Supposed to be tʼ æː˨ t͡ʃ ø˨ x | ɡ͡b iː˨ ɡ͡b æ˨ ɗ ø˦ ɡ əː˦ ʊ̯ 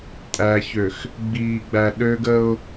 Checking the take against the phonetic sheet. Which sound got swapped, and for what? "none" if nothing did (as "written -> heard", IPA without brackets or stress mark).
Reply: t͡ʃ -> ç